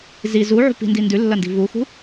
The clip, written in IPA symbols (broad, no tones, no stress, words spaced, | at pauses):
zi zuʕṳ pi̤ndindʉ lːɐndi̤vuxṳ